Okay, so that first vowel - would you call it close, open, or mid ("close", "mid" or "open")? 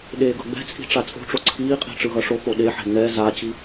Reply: mid